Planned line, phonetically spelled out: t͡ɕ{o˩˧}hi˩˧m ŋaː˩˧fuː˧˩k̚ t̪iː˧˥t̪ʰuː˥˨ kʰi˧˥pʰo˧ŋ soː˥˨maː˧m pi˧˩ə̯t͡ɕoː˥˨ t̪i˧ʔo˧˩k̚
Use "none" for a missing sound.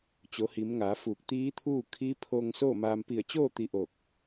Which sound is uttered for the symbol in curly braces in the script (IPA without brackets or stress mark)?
o˩˧